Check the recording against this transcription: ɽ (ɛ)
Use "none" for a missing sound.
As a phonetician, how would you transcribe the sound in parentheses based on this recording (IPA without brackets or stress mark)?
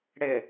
ɪ